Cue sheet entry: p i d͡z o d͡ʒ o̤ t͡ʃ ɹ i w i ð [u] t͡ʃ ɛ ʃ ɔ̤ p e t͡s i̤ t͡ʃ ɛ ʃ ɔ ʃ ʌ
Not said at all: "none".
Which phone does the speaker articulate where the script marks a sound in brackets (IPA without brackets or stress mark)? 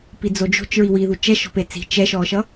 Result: u